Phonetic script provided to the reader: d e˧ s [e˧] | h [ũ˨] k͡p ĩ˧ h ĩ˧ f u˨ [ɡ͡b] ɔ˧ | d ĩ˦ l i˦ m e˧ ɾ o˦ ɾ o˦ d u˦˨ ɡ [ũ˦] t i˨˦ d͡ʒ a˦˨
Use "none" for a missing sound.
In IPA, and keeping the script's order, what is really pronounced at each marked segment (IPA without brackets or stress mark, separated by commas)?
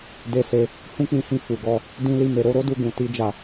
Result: e˧, ũ˦, ɡ, ũ˨